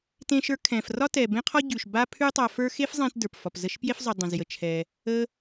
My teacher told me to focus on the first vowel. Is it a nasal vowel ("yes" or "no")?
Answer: yes